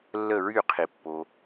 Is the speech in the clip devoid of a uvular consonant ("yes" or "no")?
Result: no